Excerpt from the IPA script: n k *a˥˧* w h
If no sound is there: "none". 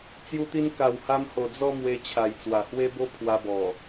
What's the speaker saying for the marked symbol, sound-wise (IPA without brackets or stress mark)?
a˨˩